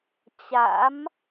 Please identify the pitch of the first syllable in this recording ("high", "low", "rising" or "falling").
rising